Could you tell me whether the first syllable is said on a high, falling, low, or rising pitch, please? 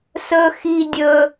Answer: high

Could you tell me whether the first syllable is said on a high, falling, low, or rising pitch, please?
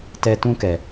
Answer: high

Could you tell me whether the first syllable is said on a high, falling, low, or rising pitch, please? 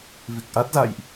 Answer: low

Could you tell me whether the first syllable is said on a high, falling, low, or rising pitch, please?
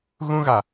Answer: high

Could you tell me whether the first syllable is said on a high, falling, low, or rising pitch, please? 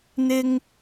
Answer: high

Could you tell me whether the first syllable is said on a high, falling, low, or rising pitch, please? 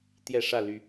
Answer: falling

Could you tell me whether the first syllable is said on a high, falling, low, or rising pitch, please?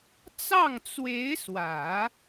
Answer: falling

